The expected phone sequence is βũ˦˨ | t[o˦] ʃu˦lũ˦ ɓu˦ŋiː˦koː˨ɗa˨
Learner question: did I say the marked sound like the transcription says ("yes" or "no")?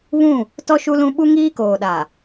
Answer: no